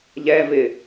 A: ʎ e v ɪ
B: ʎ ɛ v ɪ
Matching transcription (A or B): B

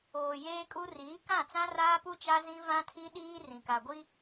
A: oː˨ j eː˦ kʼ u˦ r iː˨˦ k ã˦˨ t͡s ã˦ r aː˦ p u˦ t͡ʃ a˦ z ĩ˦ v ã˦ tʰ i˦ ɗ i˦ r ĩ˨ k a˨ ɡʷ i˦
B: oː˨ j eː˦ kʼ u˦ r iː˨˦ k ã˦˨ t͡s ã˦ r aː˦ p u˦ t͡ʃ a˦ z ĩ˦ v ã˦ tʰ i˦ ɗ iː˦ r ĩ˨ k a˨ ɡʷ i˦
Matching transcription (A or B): B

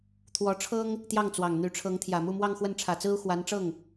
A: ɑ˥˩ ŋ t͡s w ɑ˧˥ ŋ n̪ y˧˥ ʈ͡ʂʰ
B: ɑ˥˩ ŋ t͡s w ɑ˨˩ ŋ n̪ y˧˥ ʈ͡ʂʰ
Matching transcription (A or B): B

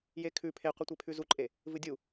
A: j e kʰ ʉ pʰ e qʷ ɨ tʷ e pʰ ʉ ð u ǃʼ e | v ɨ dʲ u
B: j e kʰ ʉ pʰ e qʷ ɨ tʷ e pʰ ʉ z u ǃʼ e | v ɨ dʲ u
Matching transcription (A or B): B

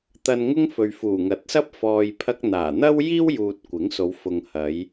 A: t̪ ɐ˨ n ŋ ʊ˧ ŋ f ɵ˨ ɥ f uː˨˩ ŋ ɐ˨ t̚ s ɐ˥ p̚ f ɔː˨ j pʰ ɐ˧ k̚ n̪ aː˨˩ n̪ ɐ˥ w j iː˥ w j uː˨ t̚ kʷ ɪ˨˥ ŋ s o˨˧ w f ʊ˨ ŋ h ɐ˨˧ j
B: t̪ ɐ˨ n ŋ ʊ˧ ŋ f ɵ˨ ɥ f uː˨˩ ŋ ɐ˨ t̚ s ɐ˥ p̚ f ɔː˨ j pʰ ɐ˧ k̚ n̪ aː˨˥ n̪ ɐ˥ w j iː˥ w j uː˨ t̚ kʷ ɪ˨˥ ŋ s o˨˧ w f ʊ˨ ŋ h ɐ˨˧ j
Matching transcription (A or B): A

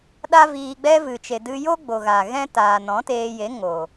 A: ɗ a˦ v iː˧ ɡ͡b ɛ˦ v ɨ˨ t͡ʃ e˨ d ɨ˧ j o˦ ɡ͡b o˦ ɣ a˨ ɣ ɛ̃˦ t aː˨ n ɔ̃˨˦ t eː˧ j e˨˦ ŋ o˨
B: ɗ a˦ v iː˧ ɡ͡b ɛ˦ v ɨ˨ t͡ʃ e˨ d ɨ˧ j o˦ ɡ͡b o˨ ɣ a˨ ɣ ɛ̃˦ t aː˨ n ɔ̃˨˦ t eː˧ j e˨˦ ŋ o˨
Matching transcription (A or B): B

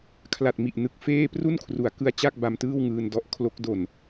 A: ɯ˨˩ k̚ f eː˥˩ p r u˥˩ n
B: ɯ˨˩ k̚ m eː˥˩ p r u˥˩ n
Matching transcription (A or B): A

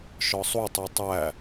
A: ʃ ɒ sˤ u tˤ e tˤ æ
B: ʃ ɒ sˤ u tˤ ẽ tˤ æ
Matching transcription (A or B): A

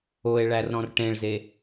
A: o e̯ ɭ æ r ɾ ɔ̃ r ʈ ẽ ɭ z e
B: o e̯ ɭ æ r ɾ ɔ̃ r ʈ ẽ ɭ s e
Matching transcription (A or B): A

